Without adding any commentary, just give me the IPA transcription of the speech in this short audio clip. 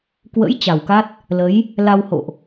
k w ə̰˧˥ j t͡ɕ a˨˩ w k a˦˥ t̚ | l ə˨˦ j | l a˧ w h o̰˧˨ ʔ

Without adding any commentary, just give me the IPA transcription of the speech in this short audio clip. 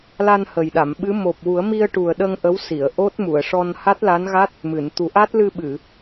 l a˧ n h ə˨˩ j ɗ a˨˩˨ m ɓ ɨ˧˥ m o˨˩ p̚ w u˨˩˦ ə̯ m i˧ ə̯ ʈ u˨˩ ə̯ ɗ ə˧ ŋ ʔ ə˧˥ w s i˨˩˨ ə̯ ʔ o˦˥ t̚ m u˨˩˨ ə̯ ʂ ɔ˧ n h a˦˥ t̚ l a˧˥ n ɣ a˦˥ t̚ | m ɨ˨˩˨ n t̪ u˨˩˦ ʔ a˦˥ t̚ l ɨ˧ ɓ ɨ˨˩˨

